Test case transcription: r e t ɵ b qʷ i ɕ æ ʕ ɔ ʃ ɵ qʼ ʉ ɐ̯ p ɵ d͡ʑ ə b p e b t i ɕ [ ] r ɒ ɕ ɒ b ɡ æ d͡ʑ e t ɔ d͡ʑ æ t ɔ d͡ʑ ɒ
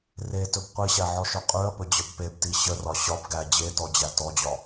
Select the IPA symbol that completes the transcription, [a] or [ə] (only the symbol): ə